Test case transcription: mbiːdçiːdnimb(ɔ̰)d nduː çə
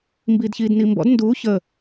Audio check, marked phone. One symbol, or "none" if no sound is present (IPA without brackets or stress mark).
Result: ɔ̰